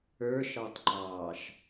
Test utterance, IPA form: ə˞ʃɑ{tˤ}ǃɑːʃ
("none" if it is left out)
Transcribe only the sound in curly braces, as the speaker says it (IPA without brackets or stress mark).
tˤ